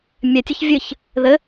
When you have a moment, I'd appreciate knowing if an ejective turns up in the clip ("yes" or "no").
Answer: no